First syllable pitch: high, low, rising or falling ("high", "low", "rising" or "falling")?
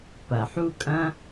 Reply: low